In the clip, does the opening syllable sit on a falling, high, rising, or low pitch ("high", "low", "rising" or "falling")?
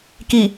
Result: low